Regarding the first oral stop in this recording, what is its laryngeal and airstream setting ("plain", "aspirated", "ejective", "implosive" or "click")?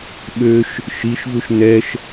implosive